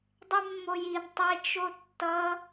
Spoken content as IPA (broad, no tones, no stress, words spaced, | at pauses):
dˤemːojin tˤet͡ʃ otːʌ